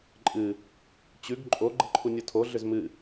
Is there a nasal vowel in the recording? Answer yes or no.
no